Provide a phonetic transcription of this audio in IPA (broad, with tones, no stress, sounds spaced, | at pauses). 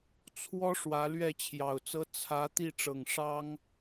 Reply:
t͡sʰ w ɔ˦ ʂ w ä˨˦ l ɥ ɛ˥˨ t͡ɕʰ j ɑ˨˩ ʊ̯ t͡s ɤ˦ t͡sʰ ä˨˦ t̪ i˥˨ ʈ͡ʂ ɤ˨˩ ŋ ʂ ɑ˦ ŋ